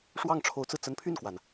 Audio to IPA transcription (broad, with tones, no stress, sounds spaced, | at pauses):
ʂ w ɑ˥˩ ŋ ʈ͡ʂʰ o˧˥ ʊ̯ t͡s ɹ̩˧ t͡s ə˧˥ n pʰ y˥˩ n k w a˩ n